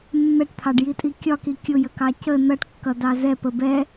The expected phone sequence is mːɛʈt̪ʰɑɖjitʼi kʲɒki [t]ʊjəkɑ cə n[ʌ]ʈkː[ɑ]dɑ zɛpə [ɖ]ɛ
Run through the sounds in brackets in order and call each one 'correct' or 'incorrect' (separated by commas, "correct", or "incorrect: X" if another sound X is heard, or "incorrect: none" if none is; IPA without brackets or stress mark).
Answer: incorrect: kʲ, correct, incorrect: ʌ, incorrect: b